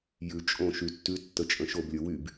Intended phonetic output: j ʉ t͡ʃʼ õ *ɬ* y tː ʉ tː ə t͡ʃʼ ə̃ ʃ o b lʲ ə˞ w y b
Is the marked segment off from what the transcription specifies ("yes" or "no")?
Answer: yes